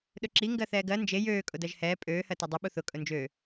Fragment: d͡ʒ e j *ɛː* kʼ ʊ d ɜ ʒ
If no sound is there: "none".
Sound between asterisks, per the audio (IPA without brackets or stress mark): øː